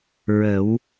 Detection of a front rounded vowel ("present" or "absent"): absent